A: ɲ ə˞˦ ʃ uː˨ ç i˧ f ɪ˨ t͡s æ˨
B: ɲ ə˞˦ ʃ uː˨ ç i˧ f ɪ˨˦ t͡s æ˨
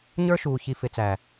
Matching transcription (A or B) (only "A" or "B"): B